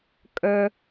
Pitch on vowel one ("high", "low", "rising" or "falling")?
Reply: high